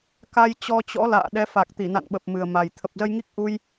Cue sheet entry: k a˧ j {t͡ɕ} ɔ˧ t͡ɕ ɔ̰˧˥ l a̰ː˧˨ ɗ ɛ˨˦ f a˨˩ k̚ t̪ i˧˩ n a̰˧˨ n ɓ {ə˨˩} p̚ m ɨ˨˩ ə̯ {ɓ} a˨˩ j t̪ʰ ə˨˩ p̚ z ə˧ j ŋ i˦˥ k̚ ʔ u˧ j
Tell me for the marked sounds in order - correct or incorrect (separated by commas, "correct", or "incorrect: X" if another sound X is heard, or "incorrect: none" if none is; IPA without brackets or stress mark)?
correct, correct, incorrect: m